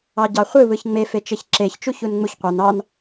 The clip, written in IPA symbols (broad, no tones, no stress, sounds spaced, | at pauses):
ɑ ɟ ɑ χʷ ɯ β ɯ ç ŋ͡m e f e t͡ʃ e ç ǁ e ç t͡ʃ u ç u n ŋ͡m u ç qʷ ɑ n ɑ n